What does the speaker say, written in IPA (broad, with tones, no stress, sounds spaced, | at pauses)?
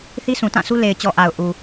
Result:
θ i˦ s ũ˨ t ã˦˨ s u˦ l e˨ ɪ̯ t͡ɕ ɔ˨ ʔ a˨ ʊ̯ ʔ u˨